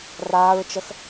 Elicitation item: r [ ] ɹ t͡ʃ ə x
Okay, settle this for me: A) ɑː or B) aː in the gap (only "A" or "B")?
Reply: B